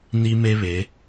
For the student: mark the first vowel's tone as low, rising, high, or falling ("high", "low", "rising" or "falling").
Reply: high